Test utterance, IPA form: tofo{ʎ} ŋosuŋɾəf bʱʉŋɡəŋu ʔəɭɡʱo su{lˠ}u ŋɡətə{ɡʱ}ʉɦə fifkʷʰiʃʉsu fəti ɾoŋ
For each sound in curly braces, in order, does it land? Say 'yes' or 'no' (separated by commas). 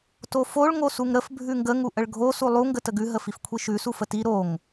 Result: no, yes, no